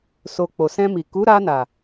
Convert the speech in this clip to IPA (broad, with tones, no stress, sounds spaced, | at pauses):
s o˨ k͡p o˨ s ɛ̃˧ m i˨ k u˨˦ ɾ a˧ n a˨